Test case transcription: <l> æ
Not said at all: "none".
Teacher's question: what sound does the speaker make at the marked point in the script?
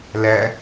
l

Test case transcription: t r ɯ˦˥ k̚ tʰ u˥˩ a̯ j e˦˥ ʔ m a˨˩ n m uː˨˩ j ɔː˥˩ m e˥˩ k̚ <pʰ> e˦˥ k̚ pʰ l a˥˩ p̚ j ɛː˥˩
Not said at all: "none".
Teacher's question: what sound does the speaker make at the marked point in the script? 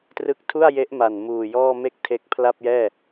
tʰ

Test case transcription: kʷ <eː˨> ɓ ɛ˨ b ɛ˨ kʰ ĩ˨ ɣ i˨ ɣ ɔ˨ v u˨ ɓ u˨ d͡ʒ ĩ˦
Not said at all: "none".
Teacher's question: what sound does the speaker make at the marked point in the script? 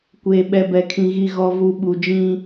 eː˨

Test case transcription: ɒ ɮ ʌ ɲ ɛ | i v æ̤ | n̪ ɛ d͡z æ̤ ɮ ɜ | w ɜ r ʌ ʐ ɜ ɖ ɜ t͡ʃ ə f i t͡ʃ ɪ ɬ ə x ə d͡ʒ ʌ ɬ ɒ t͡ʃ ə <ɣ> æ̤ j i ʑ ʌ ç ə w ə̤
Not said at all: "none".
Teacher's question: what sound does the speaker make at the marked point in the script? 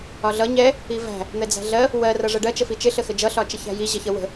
ç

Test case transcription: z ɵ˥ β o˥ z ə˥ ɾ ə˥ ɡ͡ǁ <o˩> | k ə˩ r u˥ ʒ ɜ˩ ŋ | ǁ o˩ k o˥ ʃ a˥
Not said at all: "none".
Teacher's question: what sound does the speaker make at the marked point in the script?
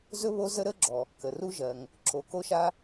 ɔ˩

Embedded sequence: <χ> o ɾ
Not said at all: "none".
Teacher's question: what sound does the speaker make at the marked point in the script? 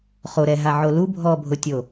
χ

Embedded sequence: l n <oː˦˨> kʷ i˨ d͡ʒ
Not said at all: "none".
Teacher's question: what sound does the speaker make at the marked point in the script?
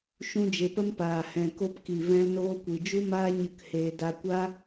oː˧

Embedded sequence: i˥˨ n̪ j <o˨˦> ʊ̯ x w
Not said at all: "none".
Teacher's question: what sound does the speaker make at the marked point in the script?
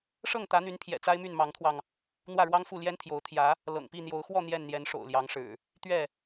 o˨˦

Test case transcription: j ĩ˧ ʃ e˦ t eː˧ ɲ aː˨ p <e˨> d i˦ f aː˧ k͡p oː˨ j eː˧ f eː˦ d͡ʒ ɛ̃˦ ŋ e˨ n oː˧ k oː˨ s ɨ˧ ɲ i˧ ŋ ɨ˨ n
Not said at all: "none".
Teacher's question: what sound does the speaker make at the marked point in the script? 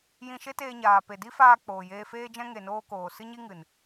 e˨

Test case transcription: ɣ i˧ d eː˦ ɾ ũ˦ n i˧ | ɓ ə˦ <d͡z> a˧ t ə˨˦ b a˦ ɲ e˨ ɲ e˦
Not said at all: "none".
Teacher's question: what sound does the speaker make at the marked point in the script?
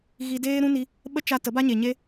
t͡ʃ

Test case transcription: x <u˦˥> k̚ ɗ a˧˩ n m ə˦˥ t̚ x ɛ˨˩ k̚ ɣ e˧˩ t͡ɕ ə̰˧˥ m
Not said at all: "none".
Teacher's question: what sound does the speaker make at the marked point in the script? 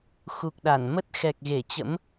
u˨˩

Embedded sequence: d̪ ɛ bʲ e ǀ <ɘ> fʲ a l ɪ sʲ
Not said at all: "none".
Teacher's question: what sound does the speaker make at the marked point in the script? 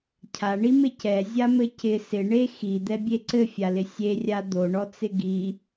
ɘ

